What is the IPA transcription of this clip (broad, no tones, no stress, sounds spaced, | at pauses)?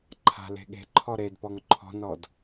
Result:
ǃʰ a̤ l e̤ ɠ e̤ ǃʰ ɔ ɾ e d p ɔ ŋ ǃʰ ɔ̤ n ɔ d